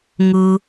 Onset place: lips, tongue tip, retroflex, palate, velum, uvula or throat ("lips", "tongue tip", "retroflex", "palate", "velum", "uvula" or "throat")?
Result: velum